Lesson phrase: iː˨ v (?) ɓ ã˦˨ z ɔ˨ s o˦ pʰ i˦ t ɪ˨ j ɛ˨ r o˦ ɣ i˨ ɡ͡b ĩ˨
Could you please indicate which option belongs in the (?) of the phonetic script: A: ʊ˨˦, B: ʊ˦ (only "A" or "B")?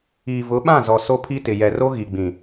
A